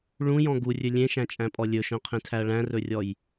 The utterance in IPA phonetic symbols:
ɭ ũ j ɔ̃ ɡ u rʲ ɵ lʲ ẽ ʃ æ̃ t͡ʃʼ æ̃ pʼ ɔ lʲ ɵ ʃ œ̃ qʰ ẽ tʰ æ ɐ̯ ɭ æ̃ r ɵ rʲ ɔ j

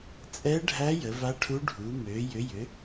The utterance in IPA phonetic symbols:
t͡sʼ ɛ˦˥ ɖʱ æ˦˥ j ə˨˦ v a˦˥ ʈʰ u˦˥ ɖʱ u˨˦ m ø˨˦ j ʏ˨˦ j ʏ˨˦

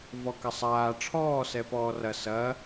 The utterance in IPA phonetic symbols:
v ɔ k ɐ sˤ aː ʈ͡ʂʰ ɔː s ɛ p ɔː r ɐ s ɐ

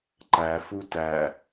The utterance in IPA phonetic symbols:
ǃ æ f u t æ

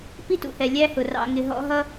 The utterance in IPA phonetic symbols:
p i˥ t ṵ˨ h ɛ˩ lʲ æ˦ h ʊ˩ r ɑ̰˨ ŋ ɪ˨ ɦ ɔ̰˦ ɦ ʌ˥

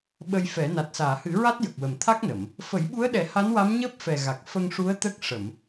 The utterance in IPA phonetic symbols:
ɓ ə˧ j f ɛ˨˩˦ n a˨˩ t̚ s aː˨˩˨ h ɨ˨˩˦ ɹ a˦˥ t̚ j ə˨˩ k̚ w ə˨˩ m t̪ʰ a˦˥ k̚ n ə˨˩˨ m | f ə˨˩˦ j ɓ u˧˥ ə̯ ɗ ɛ˨˩˦ h a˧˥ n w a˧˥ m ɲ əː˦˥ p̚ f ɛ˨˩ ɣ a˨˩ k̚ f ə˧ ŋ ʂ u˧˥ ə̯ t̪ ə˦˥ k̚ ʂ ə˨˩˨ m

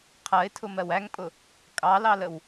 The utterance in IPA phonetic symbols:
qʰ ɜ ɪ̯ tʰ ʊ m ɜ w æ ŋ pʼ ʊ | kʼ ɑ l ɑ l ə w

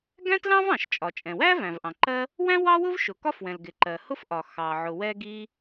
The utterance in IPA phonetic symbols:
ɡ æ̃˥ t l ɑ̃˥ v ɑ̃˩ ʃ t͡ʃʼ ɒ˩ t͡ʃʼ ɛ̃˩ w æ˥ v æ̃˩ v ʔ ɑ̃˩ ǃ ɜ˥ | w æ̃˥ w ɑ˥ w ʊ˥ v ʃ ʊ˩ k ɒ˥ f w ɛ̃˩ l ɡ ɪ˩ ǃ ɜ˩ h ʊ˥ f ʔ ɒ˩ x ɑ˩ ʕ ʊ˩ w ɛ˥ ɡ i˥

